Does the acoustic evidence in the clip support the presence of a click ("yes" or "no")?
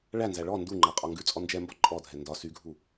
yes